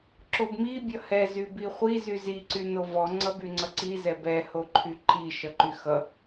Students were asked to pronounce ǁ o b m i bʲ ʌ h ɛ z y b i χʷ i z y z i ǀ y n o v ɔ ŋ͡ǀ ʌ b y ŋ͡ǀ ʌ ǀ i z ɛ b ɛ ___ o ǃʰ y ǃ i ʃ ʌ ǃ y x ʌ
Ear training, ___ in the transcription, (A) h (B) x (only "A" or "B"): A